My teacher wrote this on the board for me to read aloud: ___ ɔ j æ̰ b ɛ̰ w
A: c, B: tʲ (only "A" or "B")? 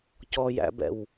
A